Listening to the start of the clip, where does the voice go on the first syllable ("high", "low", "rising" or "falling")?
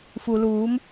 low